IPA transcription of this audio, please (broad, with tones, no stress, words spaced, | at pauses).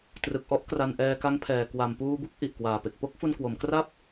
trɯ˨˩k̚ʔɔ˦˥ʔ kra˧nʔɛː˧ka˦˥ŋpʰɛː˨˩ kwa˨˩mpuː˧bu˥˩k̚ ʔi˨˩ʔkwaː˨˩pe˨˩k̚ po˥˩k̚ fu˧nkwo˩˦m kra˥˩p̚